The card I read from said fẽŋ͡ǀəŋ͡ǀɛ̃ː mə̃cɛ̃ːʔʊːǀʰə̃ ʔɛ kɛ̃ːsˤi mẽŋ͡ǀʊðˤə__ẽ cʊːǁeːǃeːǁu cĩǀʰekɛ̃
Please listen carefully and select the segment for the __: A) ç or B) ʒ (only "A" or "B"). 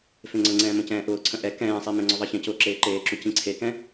A